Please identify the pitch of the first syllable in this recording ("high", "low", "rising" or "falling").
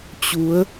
rising